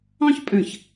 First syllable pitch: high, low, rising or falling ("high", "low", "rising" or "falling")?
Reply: high